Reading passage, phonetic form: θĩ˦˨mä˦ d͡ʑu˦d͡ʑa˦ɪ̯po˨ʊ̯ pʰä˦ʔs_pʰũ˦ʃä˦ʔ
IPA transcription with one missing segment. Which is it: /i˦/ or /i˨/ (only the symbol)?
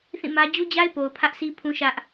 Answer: i˦